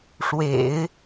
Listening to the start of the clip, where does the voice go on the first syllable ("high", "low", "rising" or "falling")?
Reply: low